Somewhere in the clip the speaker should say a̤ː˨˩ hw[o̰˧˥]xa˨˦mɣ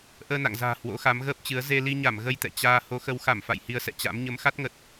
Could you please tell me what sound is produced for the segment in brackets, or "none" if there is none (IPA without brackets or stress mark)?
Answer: o̰˧˥